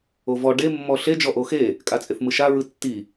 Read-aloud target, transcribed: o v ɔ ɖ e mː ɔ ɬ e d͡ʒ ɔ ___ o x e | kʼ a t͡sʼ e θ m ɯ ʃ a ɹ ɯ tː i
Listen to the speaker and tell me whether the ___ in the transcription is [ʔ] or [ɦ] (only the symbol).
ʔ